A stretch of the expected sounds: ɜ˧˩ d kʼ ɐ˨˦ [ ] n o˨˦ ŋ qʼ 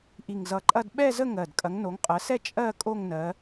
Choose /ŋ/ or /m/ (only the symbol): ŋ